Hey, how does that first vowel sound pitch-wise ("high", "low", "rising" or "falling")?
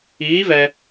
rising